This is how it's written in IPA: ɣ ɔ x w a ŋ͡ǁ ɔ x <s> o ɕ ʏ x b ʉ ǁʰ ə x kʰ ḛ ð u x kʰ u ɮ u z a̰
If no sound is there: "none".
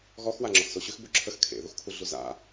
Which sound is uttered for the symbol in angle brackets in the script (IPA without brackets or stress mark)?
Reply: s